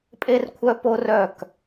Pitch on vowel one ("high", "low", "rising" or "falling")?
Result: high